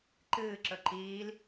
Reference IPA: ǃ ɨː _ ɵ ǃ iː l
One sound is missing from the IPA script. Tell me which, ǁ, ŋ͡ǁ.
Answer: ǁ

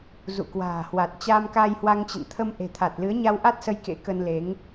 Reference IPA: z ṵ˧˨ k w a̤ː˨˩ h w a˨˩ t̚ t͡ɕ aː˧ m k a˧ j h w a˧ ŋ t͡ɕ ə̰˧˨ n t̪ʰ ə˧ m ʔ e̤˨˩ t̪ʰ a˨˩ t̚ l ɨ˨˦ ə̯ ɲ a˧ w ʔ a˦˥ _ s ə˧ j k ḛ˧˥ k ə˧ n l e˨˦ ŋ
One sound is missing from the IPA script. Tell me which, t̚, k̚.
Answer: t̚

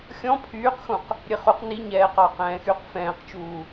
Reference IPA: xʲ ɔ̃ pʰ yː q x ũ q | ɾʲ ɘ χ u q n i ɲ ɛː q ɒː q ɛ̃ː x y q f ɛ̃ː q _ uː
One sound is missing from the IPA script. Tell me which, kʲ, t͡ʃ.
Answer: t͡ʃ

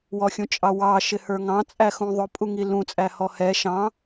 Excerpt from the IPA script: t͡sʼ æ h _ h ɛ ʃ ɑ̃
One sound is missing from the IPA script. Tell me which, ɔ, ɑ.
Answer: ɔ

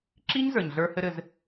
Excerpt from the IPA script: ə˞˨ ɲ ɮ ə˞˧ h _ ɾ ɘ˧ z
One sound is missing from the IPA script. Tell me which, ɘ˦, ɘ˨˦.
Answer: ɘ˦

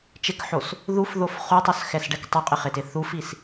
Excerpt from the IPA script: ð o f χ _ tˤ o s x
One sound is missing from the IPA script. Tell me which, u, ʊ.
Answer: u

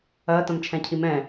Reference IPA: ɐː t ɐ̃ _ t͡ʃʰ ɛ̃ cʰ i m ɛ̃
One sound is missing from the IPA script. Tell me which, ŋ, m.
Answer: m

